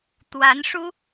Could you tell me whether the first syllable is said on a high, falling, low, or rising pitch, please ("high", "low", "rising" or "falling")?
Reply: rising